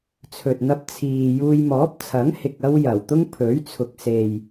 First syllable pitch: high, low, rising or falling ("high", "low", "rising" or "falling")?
low